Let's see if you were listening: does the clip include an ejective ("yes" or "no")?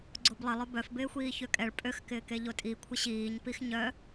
yes